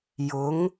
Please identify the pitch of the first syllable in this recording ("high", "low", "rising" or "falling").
rising